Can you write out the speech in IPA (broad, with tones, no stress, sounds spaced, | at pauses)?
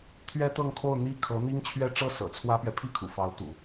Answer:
t̪ʰ ɥ ɛ˥ t̪ ɤ˥˧ ŋ kʰ o˥˧ ʊ̯ n̪ i˥˩ kʰ ɤ˧˥ n̪ i˥ ŋ t͡ɕʰ ɥ ɛ˥˧ ʈ͡ʂ ɤ˥˩ s ɤ̰˨˩ t͡sʰ w ä˥ p ɥ ɛ˨ pʰ i˥˩ kʰ ṵ˨˩ f ɑ˧˥ ʊ̯ t̪ ṵ˨˩˦